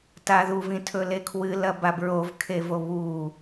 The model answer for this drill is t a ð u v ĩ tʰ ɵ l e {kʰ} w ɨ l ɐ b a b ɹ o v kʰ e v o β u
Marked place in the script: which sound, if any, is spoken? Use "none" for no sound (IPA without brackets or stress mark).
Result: kʰ